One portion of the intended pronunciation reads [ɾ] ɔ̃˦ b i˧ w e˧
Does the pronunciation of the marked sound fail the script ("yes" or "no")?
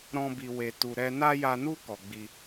no